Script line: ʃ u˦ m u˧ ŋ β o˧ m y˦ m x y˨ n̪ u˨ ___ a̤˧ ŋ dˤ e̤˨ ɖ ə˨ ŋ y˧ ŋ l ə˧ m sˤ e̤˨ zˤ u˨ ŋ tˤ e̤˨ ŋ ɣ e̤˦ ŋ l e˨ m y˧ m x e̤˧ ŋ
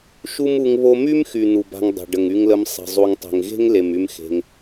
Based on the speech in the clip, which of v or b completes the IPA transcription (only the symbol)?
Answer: b